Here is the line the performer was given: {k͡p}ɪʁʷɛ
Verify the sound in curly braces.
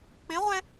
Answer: correct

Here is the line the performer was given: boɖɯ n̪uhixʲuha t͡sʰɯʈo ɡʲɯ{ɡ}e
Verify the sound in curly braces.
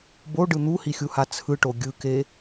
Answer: incorrect: k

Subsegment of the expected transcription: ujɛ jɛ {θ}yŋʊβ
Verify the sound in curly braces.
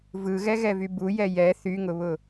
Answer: correct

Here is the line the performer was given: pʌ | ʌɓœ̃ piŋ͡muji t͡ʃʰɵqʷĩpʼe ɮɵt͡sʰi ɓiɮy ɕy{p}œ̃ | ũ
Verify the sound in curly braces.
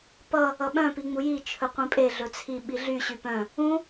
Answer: correct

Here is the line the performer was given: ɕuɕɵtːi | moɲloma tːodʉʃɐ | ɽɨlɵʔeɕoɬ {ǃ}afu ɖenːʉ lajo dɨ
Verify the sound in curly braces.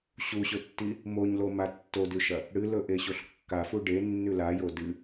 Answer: incorrect: kː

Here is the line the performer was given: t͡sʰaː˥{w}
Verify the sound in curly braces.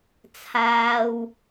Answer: correct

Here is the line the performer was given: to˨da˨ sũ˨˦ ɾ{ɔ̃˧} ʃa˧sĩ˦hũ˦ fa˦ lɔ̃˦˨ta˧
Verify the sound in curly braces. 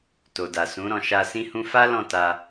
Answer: correct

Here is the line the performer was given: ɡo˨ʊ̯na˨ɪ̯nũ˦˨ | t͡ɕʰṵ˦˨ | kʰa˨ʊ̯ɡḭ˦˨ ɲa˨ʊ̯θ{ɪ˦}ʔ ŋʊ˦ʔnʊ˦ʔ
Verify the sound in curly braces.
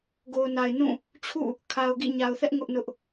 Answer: incorrect: ɛ˦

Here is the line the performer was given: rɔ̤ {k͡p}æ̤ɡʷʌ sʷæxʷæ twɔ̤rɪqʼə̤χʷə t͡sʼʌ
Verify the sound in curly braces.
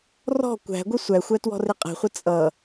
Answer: incorrect: kʷ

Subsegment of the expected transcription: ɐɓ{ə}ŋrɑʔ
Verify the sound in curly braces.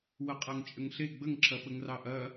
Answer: correct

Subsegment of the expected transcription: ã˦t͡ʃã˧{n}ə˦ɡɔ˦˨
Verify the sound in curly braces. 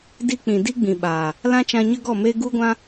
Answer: incorrect: ɲ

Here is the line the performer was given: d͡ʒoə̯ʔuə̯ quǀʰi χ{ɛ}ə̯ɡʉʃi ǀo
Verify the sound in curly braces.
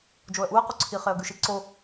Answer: incorrect: e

